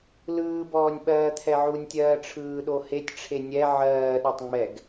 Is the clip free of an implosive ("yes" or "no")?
no